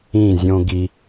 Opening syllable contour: falling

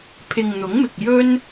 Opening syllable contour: low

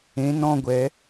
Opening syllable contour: rising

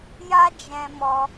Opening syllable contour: high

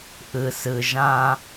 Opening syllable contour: low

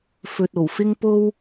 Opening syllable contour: low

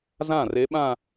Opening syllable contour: falling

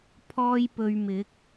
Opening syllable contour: high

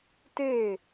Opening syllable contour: falling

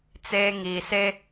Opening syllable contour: high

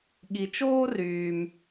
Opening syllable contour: low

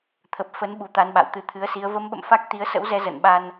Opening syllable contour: low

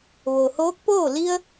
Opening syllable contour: low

